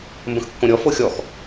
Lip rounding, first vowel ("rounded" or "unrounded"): unrounded